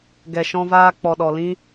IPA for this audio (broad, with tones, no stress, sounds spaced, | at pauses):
ɡ ɛ˨ ʃ ɔ̃˧ v aː˧ k͡p ɔ˨ ɗ ɔ˨ l ĩ˦